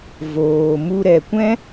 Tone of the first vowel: low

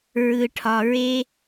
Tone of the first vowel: low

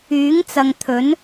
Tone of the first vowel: rising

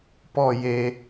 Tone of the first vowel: falling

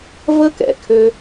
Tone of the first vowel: high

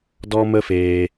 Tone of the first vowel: high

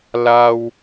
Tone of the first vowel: high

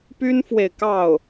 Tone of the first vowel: high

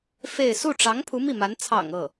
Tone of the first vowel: falling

